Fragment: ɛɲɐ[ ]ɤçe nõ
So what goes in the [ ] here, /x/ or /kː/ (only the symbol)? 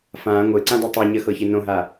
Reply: x